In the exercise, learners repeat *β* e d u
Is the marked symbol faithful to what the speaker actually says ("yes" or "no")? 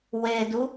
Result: no